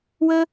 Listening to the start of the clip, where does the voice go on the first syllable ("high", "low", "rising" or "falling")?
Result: high